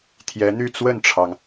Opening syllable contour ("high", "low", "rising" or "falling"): rising